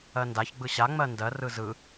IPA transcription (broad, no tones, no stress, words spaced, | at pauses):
ɜndaç ɡ͡bɯɕa ŋ͡mɜndɜr ɯzɯ